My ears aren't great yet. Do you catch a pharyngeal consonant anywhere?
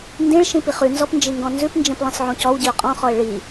yes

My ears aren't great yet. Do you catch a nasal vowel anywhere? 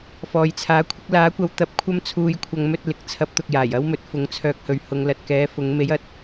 no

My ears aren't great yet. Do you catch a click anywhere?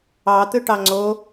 yes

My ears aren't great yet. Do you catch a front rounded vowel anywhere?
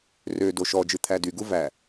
yes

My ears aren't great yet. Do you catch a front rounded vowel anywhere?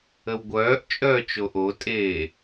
yes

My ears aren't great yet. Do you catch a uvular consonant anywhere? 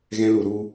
no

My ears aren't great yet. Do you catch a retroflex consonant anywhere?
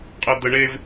yes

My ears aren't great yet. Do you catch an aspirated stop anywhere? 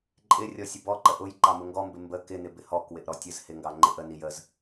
no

